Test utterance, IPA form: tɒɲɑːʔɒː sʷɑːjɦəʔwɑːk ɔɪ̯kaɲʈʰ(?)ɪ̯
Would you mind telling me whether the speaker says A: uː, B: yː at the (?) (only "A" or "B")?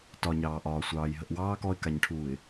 A